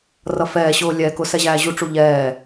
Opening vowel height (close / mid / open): mid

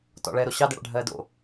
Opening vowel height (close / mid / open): mid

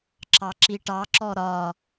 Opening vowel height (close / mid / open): open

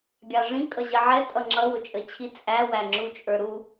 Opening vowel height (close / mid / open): open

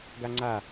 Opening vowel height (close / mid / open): open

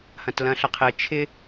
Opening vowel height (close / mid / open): open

